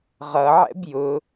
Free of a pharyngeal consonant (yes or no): no